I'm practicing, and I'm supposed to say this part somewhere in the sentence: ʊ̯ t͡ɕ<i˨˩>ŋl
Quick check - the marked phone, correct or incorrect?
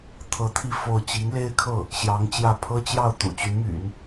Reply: incorrect